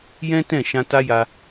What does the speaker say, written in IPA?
j ɛ̃˦ t ɛ̃˦˨ ʃ ã˧ t a˦ j a˦

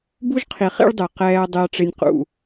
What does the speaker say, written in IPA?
b u˦ ʒ qʰ i˨ χ ḭ˦ ɭ dˤ ɪː˨ q ɛː˨ ɐ̯ dˤ ɪ˨ ɐ̯ ʈ͡ʂ ɪ˨ nʲ q ṵ˨

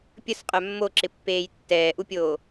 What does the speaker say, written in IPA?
pʲ ə s qʼ œ mː o ǁ ɪ pː eː j tː ɛː ʔ u pʲ oː

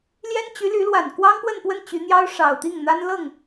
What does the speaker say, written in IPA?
l j ɛ˥ n t͡ɕ y˧˥ l y˧˥ l w a˨˩ n k w ɑ˥ ŋ p w ə˥˧ n p w ə˥˩ n t͡ɕ y˧˥ n̪ j ɑ˥ ʊ̯ ʂ ɑ˨˩ ʊ̯ t̪ i˥˩ ŋ n̪ a˥ n l ɤ˥˩ ŋ

